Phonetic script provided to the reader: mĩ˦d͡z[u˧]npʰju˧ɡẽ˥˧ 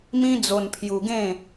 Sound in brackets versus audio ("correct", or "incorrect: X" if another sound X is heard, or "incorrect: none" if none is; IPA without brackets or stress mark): incorrect: o˧